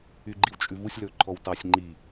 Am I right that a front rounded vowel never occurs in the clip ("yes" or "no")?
no